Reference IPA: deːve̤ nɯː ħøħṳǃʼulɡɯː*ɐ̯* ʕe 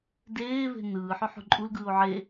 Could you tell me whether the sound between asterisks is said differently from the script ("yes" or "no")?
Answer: yes